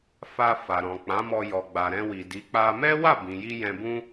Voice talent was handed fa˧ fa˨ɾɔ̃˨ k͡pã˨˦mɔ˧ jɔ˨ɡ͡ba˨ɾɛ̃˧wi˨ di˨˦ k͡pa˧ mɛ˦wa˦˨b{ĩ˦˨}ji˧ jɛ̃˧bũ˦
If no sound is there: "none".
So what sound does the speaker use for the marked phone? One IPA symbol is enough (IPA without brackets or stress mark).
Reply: ĩ˨